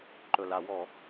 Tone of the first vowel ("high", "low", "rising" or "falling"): low